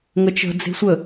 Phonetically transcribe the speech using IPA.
ŋ ə t͡ʃ ə̤ d͡z e̤ sʷ ə

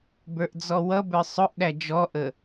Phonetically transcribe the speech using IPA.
b ə˞ ʔ d͡z ɔ w ʌ b ə˞ sˤ ʊ ʔ ɗ æ d͡ʒ ɔ ʔ ə

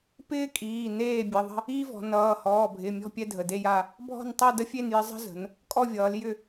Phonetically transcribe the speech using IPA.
p ɪː˥ kʼ iː˩˧˩ n eː˥˧ bʲ ə˩˧˩ ðˤ ə̤˥˧ | iː˥ v ɔ̤˩˧ n ʌː˩˧˩ h ɔː˩˧˩ bʱ ɪ˩˧˩ mʲ ɔ̤˥˧ pʲ ɛ˥ dʱ ə˩˧˩ d e˥˧ j a˥˧ | bʱ ɔ̤˥˧ n tˤ ʌ˥˧ d ə˥ fʲ e˥˧ n j ɪ˥ zˤ ə̤˥ z ə̤˩˧ n | kʼ ɔ˥˧ vʲ ʌː˩˧ l j ʏ˥˧

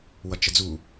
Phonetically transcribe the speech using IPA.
w ʌ t͡ʃ ə d͡z u

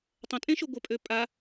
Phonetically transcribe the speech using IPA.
tˤ ə̃ tʼ ẽ ʃ o ɡʷ ə pʼ ø pʼ a

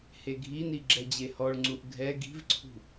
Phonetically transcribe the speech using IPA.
h e ɡʱ i n i ɡ͡ǁ ɛ d͡ʑ e h ɔ ɭ ŋ͡ǀ u ʔ ɡʱ ɛ ɡ i̤ v ǀʰ ṳ

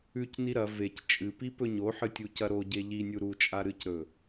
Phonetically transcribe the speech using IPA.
ʉ c n i ɾ ɐ v e c t͡ʃʼ ɨ p i p ɵ ɲ o ħ ɨ tʲ u c ɐ ɾ o ɟ e ʎ i nʲ u ɾ u t͡ʃʼ a ɾ ɨ c ɾ ɵ

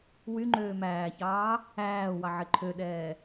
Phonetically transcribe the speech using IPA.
w y ŋ͡ǃ øː m æː ç ɑː | æː w ɑ ʕ e ǃʰ ø ɗ ɛː

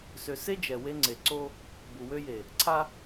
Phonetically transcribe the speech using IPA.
s ø˨ s e˦ d͡ʒ ɛ˨ w e˦ ŋ͡ǀ e˨ ǀ o˦ | b u˨ w ø˦ j e˨ | ǀʰ a˦

